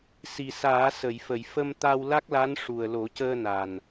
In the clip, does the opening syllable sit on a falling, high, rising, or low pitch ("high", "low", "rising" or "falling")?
low